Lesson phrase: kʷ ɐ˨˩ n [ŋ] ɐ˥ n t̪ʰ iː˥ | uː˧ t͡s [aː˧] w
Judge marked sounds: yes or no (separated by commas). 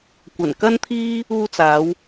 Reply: no, no